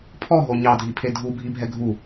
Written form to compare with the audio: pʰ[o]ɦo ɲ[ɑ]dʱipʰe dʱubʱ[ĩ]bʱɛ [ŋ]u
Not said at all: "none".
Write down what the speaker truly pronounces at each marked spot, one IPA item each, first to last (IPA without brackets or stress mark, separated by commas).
ɔ, ɑ, i, ɡʱ